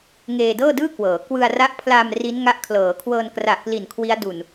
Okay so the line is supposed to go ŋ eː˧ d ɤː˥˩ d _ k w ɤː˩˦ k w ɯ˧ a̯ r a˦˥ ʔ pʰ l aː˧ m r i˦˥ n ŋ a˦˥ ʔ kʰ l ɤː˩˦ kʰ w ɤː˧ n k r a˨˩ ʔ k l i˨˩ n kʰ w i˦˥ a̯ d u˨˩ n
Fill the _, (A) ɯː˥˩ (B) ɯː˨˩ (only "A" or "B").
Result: A